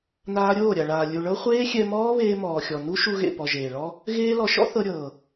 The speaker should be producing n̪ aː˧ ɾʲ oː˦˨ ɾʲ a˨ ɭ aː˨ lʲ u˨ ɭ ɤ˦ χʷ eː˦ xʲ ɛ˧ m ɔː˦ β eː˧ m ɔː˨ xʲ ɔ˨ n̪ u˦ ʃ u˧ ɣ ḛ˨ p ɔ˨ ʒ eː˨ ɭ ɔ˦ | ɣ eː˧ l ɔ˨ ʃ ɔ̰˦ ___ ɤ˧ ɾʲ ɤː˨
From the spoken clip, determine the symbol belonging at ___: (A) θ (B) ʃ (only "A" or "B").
A